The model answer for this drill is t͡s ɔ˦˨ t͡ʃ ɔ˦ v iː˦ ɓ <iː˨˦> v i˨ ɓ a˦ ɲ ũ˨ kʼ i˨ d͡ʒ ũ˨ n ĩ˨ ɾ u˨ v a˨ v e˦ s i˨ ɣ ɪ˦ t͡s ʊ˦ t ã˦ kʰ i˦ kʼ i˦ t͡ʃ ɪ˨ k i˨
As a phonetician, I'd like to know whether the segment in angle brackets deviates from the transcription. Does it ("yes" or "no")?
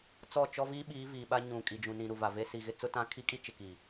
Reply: no